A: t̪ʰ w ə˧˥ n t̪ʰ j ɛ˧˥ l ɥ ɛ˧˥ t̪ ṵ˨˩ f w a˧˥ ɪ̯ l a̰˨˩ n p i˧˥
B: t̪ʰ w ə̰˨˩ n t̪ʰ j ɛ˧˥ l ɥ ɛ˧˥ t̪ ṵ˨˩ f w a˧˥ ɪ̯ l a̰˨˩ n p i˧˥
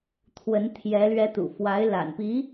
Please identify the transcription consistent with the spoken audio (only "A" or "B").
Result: A